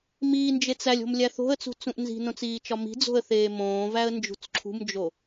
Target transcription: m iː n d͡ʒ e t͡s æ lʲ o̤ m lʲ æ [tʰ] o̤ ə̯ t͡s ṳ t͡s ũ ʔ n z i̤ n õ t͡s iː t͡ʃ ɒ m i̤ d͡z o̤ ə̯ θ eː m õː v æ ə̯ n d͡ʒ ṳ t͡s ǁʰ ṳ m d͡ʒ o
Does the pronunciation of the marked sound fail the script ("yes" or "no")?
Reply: yes